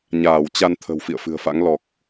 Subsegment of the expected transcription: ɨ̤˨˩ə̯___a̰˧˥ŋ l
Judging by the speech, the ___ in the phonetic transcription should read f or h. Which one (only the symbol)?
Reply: f